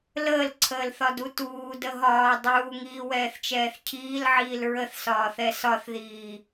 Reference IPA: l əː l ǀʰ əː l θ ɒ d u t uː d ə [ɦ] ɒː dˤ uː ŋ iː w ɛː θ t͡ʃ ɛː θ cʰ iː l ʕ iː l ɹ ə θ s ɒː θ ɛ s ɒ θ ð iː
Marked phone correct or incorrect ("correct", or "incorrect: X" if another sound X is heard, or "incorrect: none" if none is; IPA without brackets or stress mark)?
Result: correct